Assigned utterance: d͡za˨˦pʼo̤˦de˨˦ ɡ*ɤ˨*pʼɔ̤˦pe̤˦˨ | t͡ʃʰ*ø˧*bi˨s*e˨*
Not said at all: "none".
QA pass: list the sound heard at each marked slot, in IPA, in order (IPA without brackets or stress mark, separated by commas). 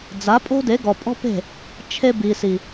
ɔ˨, e˧, i˨